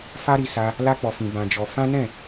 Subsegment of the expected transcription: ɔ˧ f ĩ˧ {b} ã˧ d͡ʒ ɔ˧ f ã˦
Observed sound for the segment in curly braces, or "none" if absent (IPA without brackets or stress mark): b